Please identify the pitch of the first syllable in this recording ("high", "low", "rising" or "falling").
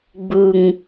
low